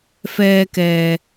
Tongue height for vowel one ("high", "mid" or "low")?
mid